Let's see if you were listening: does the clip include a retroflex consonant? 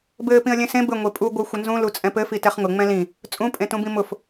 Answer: no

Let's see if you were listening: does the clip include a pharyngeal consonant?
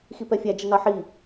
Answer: yes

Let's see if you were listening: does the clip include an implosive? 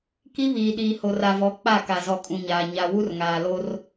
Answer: yes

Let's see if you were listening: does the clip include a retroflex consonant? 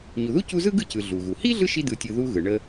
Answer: yes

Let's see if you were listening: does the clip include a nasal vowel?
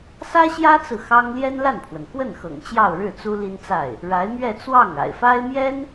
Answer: no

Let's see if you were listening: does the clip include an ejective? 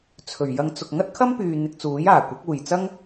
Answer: no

